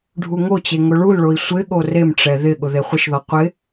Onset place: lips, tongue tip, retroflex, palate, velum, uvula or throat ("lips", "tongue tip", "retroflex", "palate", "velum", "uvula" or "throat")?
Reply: retroflex